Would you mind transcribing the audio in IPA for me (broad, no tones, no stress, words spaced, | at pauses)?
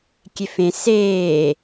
kʲefẽ seː